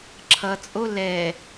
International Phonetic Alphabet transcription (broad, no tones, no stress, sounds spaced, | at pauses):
ǁʰ ʌ t͡sʼ o l ɛ